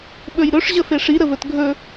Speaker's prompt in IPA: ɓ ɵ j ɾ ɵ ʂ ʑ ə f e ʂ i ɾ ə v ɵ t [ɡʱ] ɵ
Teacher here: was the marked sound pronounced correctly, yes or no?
yes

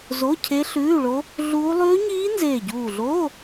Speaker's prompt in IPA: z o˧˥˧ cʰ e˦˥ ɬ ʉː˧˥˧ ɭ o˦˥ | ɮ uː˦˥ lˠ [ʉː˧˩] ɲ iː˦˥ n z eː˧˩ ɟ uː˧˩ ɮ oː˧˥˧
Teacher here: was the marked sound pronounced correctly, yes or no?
no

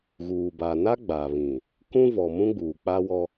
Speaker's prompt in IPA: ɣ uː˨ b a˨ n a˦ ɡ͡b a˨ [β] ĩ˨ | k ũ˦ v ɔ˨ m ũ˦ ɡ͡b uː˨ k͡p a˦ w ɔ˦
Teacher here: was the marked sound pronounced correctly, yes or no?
yes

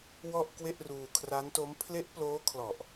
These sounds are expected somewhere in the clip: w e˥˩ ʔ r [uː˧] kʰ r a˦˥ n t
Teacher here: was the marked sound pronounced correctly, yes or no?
yes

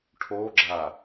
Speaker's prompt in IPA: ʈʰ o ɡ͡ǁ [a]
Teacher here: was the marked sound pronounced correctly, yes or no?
yes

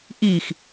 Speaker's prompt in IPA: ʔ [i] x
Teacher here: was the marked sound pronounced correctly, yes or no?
yes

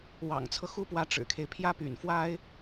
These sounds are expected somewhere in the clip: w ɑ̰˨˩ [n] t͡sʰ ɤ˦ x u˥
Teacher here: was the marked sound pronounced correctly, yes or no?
no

